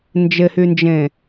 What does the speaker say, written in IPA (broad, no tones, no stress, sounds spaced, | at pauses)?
n d͡ʒ ɪ h y n d͡ʒ ẽ